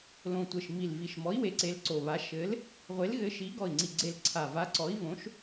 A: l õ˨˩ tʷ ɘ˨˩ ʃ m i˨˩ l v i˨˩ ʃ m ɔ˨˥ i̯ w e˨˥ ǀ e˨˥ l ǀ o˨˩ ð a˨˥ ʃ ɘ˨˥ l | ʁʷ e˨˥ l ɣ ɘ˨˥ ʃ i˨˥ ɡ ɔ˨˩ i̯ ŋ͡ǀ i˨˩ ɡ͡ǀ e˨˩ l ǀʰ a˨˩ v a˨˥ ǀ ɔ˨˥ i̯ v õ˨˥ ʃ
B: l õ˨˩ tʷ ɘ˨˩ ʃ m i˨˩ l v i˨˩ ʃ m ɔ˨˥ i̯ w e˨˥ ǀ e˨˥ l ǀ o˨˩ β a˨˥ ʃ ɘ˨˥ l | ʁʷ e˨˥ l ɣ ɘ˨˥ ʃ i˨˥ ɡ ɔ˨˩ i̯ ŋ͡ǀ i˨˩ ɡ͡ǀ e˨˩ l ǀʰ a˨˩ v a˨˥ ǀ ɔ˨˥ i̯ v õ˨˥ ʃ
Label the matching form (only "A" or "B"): B